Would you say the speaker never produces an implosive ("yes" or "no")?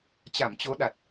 no